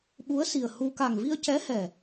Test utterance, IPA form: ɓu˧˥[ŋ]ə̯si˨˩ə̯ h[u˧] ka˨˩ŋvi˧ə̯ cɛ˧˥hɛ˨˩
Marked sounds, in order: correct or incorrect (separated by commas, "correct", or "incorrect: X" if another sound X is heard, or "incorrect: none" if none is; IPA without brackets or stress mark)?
incorrect: none, correct